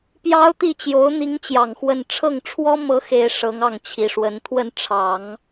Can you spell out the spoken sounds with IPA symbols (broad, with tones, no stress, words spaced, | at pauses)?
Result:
pjɑ˥ʊ̯t̪i˥˩ t͡ɕjo˧˥ʊ̯n̪i˧˥ŋt͡ɕjɑ˨˩ŋ xwə˥˧n ʈ͡ʂʰɤ˥˩ŋʈ͡ʂʰwɔ˥ mɤ˧˥xe˨˩ɪ̯ ʂɤ˧˥ŋɑ˥˩ŋt͡ɕʰi˨˩ʂwə˧˥n t̪ʰwə˥˩nʈ͡ʂʰɑ˨˩˦ŋ